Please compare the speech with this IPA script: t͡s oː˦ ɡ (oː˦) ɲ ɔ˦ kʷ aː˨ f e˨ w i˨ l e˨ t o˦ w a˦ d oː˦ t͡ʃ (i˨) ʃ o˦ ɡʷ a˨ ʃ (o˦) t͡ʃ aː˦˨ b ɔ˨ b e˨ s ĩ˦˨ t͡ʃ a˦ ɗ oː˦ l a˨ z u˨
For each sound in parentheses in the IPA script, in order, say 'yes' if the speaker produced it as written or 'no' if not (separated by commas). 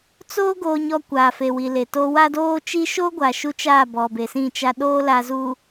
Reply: yes, no, no